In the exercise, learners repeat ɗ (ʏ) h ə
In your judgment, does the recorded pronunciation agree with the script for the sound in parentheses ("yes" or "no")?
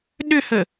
yes